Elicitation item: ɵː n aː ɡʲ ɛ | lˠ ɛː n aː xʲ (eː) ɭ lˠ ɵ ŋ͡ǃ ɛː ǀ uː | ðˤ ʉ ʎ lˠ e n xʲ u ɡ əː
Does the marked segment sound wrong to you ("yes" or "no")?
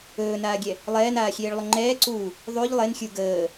no